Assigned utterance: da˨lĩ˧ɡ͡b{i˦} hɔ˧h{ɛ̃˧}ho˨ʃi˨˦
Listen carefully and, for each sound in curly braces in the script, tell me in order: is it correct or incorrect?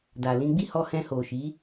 correct, correct

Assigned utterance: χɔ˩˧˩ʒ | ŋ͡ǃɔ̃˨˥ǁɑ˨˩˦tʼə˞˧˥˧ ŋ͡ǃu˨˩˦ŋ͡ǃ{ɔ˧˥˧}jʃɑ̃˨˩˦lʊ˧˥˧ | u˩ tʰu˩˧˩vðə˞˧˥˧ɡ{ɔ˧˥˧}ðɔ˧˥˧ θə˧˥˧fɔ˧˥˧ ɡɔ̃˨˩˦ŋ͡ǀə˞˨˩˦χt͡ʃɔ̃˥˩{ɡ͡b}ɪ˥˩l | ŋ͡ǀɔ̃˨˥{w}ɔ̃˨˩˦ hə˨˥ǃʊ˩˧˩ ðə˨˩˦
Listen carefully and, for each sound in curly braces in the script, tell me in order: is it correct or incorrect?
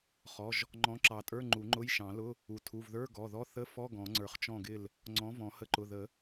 incorrect, incorrect, incorrect, incorrect

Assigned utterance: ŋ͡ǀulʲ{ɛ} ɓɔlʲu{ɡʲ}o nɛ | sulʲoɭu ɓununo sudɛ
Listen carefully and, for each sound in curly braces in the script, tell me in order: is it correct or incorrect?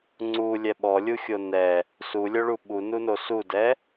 correct, incorrect

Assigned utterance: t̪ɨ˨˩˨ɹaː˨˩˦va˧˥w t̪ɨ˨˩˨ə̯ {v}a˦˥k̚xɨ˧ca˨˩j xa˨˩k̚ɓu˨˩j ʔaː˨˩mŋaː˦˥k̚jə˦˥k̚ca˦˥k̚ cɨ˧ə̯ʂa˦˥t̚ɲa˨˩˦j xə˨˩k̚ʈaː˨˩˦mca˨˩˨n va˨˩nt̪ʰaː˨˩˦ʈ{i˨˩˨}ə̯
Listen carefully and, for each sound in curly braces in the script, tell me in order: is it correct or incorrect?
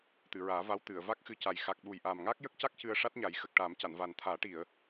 correct, correct

